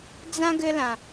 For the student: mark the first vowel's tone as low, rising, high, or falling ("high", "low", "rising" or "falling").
high